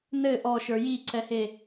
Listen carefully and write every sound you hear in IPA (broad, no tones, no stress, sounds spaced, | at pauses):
n ɘ ʔ ɔ ʃ ə˞ j i ǀ ɛ h e